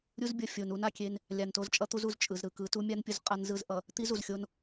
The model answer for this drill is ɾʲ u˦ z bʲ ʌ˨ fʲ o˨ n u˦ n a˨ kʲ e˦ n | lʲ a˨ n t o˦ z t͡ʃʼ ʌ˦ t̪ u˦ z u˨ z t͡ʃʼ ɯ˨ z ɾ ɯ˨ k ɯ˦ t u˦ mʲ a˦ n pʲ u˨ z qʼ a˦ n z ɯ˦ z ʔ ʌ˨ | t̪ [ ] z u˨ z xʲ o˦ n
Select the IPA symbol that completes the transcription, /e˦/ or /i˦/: i˦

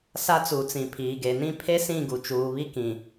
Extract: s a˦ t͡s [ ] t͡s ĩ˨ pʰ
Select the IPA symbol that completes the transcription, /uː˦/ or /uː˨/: uː˨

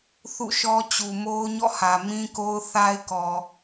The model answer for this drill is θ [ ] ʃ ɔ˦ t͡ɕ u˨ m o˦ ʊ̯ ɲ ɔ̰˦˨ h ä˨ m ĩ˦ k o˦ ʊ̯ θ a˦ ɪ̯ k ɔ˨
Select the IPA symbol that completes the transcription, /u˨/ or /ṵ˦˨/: ṵ˦˨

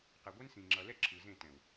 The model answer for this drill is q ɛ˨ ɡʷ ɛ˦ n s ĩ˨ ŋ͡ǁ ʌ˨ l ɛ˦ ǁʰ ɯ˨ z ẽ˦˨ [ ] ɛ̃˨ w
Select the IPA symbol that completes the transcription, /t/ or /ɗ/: t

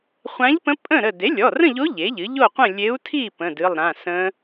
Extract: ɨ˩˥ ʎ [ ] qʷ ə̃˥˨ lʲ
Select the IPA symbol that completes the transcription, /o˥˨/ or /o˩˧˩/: o˥˨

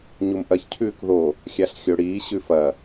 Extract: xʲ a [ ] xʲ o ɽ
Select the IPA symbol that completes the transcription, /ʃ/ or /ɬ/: ɬ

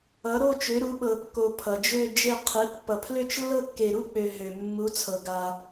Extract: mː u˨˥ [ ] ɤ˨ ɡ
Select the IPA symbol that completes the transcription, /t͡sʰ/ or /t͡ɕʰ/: t͡sʰ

